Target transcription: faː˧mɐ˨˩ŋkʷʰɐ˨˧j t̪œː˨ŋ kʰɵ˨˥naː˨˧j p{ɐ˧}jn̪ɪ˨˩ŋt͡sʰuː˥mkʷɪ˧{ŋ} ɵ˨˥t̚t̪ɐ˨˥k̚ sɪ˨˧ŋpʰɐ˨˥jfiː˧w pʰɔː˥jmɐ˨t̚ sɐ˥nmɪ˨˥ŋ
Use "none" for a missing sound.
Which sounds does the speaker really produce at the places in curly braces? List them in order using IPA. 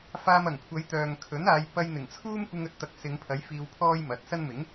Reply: ɐ˧, ŋ

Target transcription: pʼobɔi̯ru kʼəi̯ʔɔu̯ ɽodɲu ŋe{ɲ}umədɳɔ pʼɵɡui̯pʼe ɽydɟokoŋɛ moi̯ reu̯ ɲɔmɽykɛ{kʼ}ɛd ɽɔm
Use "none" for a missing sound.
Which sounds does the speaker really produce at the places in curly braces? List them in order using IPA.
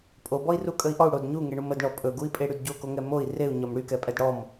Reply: ɳ, pʼ

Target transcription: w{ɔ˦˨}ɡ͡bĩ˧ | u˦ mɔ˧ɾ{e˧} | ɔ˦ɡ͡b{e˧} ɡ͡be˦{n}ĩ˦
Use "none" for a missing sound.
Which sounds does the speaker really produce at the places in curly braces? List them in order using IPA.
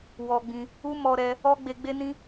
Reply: ɔ˧, ɛ˧, e˧, n

